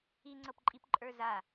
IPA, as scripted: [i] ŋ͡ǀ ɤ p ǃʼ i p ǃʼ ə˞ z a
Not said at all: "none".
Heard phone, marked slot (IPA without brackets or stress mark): i